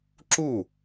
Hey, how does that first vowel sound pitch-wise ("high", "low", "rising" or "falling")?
falling